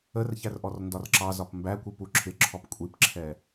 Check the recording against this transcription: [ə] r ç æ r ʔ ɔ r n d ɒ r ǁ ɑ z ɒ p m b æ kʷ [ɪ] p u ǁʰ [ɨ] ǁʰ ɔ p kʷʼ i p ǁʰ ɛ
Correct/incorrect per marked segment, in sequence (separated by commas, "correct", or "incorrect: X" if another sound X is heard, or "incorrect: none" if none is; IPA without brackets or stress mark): correct, incorrect: i, incorrect: ɪ